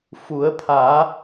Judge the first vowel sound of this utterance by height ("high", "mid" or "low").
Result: high